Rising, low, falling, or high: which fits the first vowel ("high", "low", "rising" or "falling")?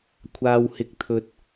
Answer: low